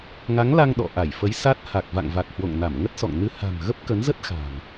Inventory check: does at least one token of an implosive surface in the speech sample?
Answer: yes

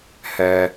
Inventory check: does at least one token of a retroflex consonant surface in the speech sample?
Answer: no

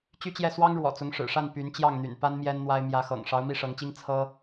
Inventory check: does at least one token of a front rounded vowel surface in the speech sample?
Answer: yes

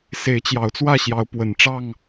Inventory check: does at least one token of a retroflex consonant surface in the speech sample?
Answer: yes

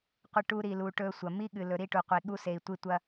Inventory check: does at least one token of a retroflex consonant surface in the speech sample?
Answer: yes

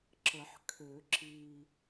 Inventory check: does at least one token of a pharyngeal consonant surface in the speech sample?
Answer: yes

